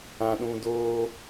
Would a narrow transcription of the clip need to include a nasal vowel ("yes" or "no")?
yes